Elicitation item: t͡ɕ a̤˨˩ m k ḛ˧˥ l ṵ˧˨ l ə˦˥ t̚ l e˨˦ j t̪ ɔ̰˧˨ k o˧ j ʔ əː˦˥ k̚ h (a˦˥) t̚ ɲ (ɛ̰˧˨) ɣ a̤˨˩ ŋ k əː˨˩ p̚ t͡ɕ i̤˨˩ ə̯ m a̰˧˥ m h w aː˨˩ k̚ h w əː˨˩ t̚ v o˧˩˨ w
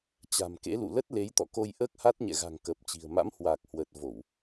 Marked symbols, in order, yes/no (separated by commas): yes, yes